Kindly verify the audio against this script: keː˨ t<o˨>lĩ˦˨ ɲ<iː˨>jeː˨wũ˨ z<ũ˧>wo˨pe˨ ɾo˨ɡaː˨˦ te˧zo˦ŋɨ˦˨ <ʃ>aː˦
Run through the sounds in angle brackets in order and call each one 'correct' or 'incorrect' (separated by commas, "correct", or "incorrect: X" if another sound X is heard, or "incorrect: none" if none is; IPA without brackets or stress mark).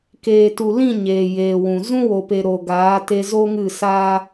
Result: incorrect: u˨, incorrect: eː˨, incorrect: ũ˦, incorrect: s